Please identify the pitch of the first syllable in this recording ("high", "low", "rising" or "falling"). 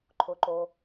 low